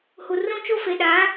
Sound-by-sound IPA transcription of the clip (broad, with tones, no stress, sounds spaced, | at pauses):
h u˨ r ũ˦ t͡ʃ o˦ f e˨ ɗ aː˨˦